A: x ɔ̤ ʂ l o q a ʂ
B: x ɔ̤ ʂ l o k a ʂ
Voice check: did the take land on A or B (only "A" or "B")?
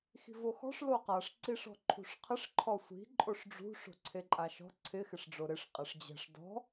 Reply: A